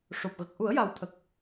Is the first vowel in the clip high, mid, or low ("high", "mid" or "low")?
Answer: mid